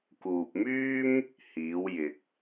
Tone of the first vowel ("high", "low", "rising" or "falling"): low